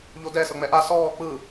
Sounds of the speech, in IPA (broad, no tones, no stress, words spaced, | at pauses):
ʎodɛ sɤŋ͡mɛʔa sɔː k͡pɯ